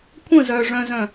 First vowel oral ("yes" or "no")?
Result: no